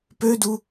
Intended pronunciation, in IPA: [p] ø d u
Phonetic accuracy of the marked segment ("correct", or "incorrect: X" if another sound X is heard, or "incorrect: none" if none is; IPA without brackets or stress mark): correct